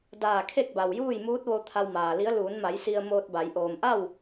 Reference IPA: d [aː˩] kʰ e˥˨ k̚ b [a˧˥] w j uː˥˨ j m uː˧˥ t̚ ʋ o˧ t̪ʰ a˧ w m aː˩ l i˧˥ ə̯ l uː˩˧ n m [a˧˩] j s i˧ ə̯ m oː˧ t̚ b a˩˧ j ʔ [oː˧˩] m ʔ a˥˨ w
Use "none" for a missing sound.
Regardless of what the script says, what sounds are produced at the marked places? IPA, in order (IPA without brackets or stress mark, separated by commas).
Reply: aː˧˩, a˩, a˩˧, oː˩